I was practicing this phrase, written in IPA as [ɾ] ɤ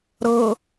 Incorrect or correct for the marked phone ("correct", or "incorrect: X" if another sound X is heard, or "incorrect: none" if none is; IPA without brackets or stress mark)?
correct